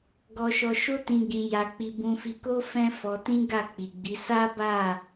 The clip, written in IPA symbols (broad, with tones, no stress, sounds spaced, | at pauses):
ɡ ɔ˧ ʃ ɔ˧ ʃ o˦ t ĩ˧ ɡ ĩ˧ j a˧ k͡p i˧ b ũ˧ f i˧ k o˦ f ɛ̃˦ f ɔ˧ t ĩ˦ ɡ a˦˨ k͡p i˨ ɡ͡b i˨˦ s a˦ b a˦˨